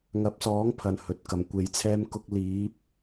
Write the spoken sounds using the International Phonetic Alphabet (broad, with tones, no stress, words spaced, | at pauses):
ŋɐ˨˥p̚sɔː˨˥ŋpʰɐ˨˩n hɵ˨t̚ kɐ˨˩mkʷe˨˧jt͡sʰɛː˥m kʊ˧k̚liː˨˥p̚